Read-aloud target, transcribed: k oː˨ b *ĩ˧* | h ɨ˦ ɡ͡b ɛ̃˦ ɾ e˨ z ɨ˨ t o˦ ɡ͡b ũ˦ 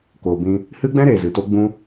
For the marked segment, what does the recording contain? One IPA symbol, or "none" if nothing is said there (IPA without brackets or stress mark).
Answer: ĩ˧